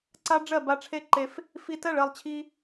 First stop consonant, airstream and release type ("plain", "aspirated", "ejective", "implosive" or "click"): click